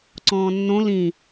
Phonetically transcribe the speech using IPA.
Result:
ǀ ɔ̃ː nː õ l ĩ

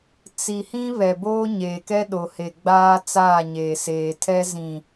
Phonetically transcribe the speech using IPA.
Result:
t͡s i˨ h ĩ˦ β ɛ˨ b oː˦ ɲ eː˨ k ɛ˦ ɗ o˨ h e˨ ɡ͡b aː˦ t͡s aː˦˨ ɲ eː˨ s eː˨ tʰ ɛ˦ z ĩ˨

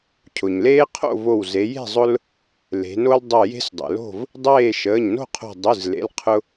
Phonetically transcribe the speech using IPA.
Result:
cʰ ʊ˩ ɲ l eː˦ qʰ o̰˥˨ v o˧˩ w z e˩˧ j e̤˥˨ zˤ ʊ˦ l | l e̤˩˧ n o˦ l dˤ ɯ˧˩ j e̤˦ s dˤ ḛ˩ l o̤˥˨ v | dˤ eː˥˨ ʃ əː˩˧˩ ɲ n o̤˥˨ qʰ o̤˧˩ dˤ ɯ˩˧˩ z l ḛ˩˧˩ l qʰ ʊ˦

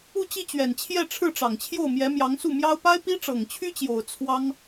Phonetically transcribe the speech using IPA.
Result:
u˥˧ t͡ɕ i˥˩ t͡ɕ ɥ ɛ˨˩ n t͡ɕʰ j ɛ˥˧ ʈ͡ʂʰ ɻ̩˥˩ ʈ͡ʂ ɑ˨˩ ŋ t͡ɕʰ j o˥˩ ʊ̯ m j ɛ˧˥ m j ɑ˧˥ ŋ s u˥˩ m j ɑ˥ ʊ̯ p a˥ ɪ̯ p i˥ ʈ͡ʂ ɤ˨˩ ŋ t͡ɕʰ y˥ t͡ɕ j o˨˩ ʊ̯ t͡sʰ w ɑ˥ ŋ

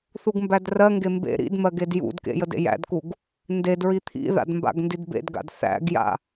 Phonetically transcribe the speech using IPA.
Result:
θ u ɡ m b æ d r ɜ ŋ ɡ e m b ḛ ɾ ḭ d m ɜ ɡ e d j ṵ d k ḛ j ə d ḛ j æ̰ d k u ɡ | n d e d ɹ i t̪ʰ ḭ ð a̰ d m b a̰ ɡ n d i d b ḛ d ɡ a̰ d θ æ̰ ɡ j a̰

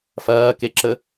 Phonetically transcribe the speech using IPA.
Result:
f ɐː k e ǁ ə

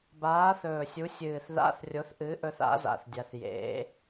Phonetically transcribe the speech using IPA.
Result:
b aː˨˥ θ ɵː˨˩ sʲ u˨˥ sʲ ɨː˨˩ θ ð a̰˧˥˧ θ rʲ o˨˥ θ ʔ ɨ˨˥ ʔ ɵ˥ θ a̰˨˥ z a̰˨˩ θ dʲ a˨˥ θ j ḛ˨˥

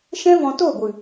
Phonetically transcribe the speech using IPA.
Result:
ʃ ɛ̃˦ v ɔ̃˧ t oː˦˨ ɡʷ ɨ˨

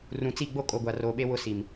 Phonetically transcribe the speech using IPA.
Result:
r ũ˨ t͡s i˦˨ ɡ͡b o˦ kʼ o˨ ɡʷ a˨ r oː˨ ɓ e˦ w ʊ˦ s i˨ m

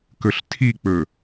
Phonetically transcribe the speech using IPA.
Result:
k ɵ ɬ tʰ i k͡p ɵ

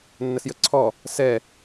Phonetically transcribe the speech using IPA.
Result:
nː ə s j ə ǀʰ ɔ | s ɛ

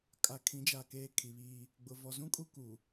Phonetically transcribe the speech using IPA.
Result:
kʼ a˨ kʰ ĩ˨˦ d͡ʒ a˨ k eː˨ kʰ i˨ β iː˦ | ɡ͡b ʊ˨ v ɔ˨ z ũ˦ kʼ u˦ k u˨

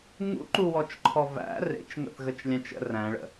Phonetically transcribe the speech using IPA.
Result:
ŋ ṵ ǃ u w ɔ t͡ʃ ǃʰ ɔ v æ̰ r ḛ t͡ʃ ŋ ə̰ θ ɣ ə t͡ʃ lʲ æ̃ t͡ʃ ə̰ r æ̃ ɭ ə̰

